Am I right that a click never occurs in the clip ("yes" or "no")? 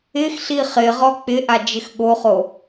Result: yes